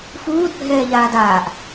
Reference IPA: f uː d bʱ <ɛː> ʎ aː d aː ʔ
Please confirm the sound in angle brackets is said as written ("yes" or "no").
yes